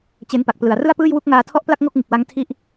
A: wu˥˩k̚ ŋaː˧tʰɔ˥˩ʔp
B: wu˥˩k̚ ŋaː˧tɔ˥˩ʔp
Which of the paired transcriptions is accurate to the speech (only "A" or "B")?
A